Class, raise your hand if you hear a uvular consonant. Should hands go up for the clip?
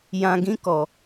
no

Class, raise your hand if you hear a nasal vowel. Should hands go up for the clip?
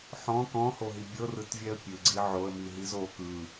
yes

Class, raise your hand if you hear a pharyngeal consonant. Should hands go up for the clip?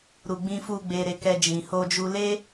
no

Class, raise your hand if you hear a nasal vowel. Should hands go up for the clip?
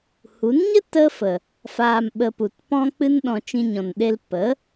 yes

